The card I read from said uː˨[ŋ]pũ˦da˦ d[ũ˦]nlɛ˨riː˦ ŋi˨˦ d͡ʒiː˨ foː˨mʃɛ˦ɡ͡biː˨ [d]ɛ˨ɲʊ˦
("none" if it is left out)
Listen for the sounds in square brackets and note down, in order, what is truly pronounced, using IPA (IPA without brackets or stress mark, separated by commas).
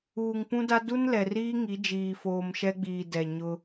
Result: ŋ, u˦, d